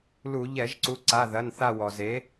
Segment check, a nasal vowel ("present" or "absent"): absent